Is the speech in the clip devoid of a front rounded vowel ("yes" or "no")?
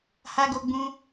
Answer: yes